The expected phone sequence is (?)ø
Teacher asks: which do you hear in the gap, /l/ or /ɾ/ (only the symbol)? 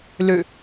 l